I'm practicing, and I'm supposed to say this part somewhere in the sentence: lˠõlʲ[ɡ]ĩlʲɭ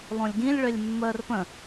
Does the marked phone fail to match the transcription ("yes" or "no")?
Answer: no